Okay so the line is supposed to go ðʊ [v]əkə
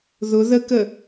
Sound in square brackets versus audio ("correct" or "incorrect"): incorrect